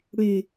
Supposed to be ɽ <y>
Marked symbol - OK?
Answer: yes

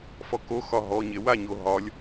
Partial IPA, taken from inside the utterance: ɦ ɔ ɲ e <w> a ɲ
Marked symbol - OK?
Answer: yes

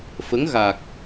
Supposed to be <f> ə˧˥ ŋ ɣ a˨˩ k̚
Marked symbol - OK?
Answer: yes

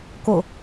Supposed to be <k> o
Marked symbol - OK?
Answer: yes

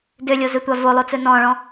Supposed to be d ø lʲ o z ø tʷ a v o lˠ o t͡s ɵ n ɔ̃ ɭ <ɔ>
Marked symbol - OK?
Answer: no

